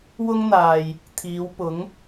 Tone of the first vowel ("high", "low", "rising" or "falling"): high